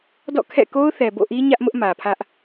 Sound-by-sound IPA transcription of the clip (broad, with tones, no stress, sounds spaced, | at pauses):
d ɔ̰˦˨ kʰ ɛ̰˦˨ k o˦ ʊ̯ θ ɛ˨ b o̰˦˨ ʔ i˦ ɲ ä˦ ʔ m ʊ˦ ʔ m ä˨ pʰ ä˦ ʔ